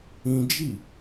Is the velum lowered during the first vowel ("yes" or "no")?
yes